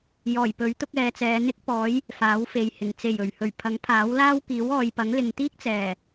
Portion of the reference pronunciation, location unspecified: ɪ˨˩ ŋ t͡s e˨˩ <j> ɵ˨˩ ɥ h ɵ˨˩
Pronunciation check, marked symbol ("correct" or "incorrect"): correct